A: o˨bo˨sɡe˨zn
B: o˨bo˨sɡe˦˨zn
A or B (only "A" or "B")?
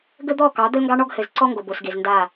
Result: A